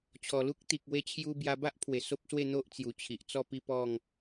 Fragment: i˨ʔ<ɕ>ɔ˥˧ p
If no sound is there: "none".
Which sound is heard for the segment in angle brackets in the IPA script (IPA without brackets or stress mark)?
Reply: t͡s